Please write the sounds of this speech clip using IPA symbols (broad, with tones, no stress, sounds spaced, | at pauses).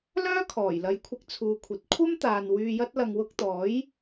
l œː˥ kʰ ɔː˨˩ j l ɐ˨˥ j kʷʰ ɪ˧ k̚ t͡sʰ uː˨ kʷʰ ɐ˨˥ t̚ kʷʰ ɐ˥ m t̪ aː˨ n w yː˧ j ɐ˥ t̚ l ɐ˧ ŋ w ʊ˧ k̚ t̪ ɔː˨˥ j